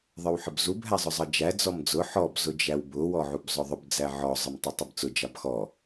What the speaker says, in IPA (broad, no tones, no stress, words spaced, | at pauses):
ðˤə˞wħəbzub ɦæzˤʊzˤəd͡ʒæ d͡zɔmd͡zʊ ħɔb zʊd͡ʒæwbʊ wɔʕubzˤʊðˤʊb d͡zæʕɔ zˤəmtˤutˤɪbt͡sʊ d͡ʒɑbxɔ